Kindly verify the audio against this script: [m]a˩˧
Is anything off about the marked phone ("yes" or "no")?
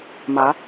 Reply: no